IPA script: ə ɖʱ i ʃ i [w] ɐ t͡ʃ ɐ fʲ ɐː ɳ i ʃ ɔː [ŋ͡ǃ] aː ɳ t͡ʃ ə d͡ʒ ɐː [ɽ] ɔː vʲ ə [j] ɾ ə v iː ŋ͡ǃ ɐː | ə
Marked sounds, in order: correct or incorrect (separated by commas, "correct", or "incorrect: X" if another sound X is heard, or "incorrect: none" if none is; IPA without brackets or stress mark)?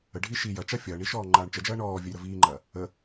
incorrect: j, correct, incorrect: ɳ, correct